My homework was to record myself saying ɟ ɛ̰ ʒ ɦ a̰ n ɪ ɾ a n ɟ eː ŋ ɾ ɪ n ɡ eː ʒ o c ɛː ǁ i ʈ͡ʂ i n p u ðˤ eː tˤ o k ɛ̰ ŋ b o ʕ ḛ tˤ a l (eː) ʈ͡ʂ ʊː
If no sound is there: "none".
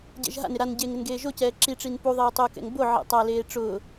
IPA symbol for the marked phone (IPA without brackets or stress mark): eː